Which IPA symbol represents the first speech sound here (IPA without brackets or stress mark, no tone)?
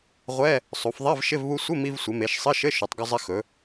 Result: ʁʷ